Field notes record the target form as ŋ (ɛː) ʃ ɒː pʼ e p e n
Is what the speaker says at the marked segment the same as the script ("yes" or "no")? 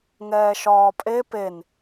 yes